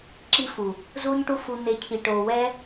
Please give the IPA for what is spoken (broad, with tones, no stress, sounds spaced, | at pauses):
ǁ i˧ f u˨ | z uː˧ ɲ ʈ u˧ f u˨ n̪ e˨ cʰ i˨ ʈ oː˨ w ɛ˧